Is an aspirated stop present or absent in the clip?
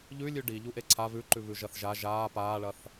present